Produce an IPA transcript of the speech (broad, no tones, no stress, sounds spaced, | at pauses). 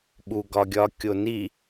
ɓ u ɡ ɒ ɡʲ ɒ kʲ o n i